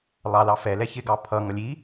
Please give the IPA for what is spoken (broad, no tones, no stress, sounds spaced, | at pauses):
lˠ ɑ l ɑ f ɛ l ɛ ç ɪ ɡ ɑ pʰ ʌ ŋ ʌ lʲ i